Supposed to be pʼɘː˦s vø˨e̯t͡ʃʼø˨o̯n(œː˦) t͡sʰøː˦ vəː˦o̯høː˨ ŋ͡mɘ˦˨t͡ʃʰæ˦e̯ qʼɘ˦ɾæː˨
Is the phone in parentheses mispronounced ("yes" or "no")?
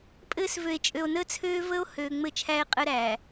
yes